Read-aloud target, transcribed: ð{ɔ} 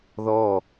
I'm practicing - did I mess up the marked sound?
no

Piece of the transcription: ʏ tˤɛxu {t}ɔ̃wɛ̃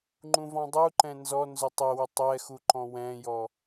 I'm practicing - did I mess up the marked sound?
yes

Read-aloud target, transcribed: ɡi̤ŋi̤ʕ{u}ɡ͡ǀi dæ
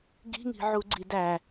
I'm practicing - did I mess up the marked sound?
no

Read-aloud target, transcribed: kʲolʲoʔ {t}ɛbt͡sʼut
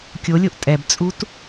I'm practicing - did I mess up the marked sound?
yes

